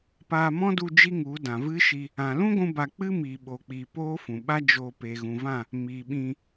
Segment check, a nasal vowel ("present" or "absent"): present